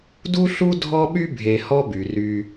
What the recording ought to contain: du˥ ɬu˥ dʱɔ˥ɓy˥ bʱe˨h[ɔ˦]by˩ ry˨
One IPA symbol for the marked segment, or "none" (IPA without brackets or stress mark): ɔ˦